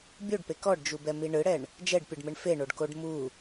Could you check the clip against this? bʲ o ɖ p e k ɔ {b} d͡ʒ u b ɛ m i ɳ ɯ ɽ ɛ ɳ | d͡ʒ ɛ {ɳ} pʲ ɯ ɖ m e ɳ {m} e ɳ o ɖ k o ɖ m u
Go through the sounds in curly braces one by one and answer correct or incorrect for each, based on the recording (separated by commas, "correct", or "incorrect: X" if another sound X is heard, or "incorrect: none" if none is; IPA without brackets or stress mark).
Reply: incorrect: ɖ, incorrect: ɖ, incorrect: f